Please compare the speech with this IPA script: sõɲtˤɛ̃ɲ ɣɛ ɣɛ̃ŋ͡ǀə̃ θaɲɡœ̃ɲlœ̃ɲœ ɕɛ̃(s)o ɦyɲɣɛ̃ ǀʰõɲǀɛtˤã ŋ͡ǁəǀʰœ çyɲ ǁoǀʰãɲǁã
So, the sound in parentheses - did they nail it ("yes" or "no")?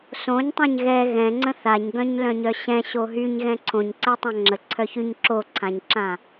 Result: no